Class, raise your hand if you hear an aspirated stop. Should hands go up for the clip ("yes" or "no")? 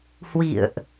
no